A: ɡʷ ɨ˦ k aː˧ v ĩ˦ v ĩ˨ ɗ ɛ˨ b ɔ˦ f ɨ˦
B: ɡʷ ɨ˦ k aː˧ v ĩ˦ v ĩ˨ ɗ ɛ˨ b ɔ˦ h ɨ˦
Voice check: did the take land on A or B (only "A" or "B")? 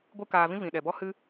B